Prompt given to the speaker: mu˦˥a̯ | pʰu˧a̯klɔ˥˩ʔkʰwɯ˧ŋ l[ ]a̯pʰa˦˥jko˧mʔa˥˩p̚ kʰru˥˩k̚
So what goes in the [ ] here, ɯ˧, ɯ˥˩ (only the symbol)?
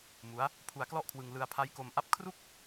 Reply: ɯ˧